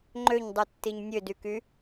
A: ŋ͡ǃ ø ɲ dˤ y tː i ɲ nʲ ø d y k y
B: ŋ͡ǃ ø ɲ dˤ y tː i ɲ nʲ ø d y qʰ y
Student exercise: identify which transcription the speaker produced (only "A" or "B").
A